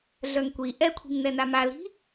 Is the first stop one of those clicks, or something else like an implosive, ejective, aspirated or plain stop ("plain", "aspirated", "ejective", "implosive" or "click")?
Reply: plain